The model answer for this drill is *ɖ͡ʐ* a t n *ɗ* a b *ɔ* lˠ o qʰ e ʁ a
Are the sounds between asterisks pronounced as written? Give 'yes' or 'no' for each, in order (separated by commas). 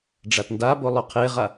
yes, no, no